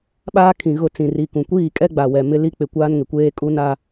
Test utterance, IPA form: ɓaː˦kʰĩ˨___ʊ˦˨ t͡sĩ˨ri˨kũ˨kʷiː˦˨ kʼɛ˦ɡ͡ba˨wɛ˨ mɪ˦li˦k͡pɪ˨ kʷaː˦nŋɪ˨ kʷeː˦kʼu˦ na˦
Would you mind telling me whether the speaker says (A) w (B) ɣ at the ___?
B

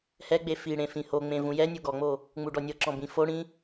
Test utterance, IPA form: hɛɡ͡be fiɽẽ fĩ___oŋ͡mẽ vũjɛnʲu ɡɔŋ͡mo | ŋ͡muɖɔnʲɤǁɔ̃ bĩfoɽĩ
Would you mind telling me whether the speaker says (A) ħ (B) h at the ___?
B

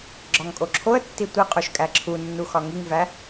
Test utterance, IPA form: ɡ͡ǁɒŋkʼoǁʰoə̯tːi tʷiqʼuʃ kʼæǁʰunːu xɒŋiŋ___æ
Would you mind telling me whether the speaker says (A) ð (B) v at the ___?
B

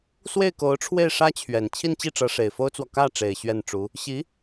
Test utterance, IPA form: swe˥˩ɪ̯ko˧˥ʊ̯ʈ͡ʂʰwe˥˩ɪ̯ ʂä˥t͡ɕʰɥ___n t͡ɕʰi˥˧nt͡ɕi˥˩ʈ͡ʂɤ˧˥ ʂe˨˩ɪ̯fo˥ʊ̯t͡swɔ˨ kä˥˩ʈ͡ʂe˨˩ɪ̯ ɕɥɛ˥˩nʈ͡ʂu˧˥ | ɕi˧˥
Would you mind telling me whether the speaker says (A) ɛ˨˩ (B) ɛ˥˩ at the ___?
A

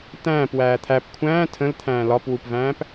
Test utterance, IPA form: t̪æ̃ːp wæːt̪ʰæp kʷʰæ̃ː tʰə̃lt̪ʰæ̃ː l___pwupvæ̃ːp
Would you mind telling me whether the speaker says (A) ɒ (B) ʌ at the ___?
A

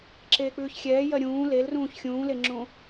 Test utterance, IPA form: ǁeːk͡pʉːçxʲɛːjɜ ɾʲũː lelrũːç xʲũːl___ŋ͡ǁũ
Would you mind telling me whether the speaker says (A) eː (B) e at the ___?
B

